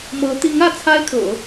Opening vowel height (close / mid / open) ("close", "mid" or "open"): mid